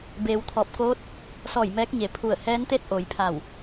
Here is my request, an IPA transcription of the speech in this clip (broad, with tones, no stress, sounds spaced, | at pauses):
b eː˩˧ w t̪ʰ ɔː˧˩ p̚ k oː˧˥ t̚ | s ɔː˧˩ j m ɛː˧˥ k̚ ɲ e˩˧ pʰ u˧˩ ə̯ h ɛː˧˥ n t̪ e˥˨ t̚ ʔ o˩˧ j pʰ a˧˩ w